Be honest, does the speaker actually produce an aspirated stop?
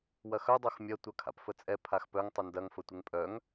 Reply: yes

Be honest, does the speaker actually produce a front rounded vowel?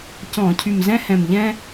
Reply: yes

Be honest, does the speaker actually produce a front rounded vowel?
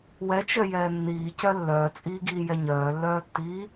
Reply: yes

